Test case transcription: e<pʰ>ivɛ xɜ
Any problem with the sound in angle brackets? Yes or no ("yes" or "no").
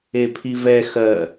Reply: no